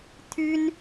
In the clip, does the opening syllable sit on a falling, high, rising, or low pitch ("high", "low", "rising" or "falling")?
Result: high